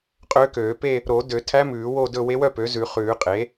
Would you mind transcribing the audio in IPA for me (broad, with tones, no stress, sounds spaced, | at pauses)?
qʼ øː˧˥ k øː˨˩˦ p e˥˧ | ɾ o˨˩˦ d ø˨˩˦ tʰ æ˧˥ m ʉː˨˩˦ w o˥˧ d ɵ˥˧ w e˧˥ w œ˥˧ p ø˩˥ z ʉ˨˩˦ χ ʉː˨˩˦ qʼ e˩˥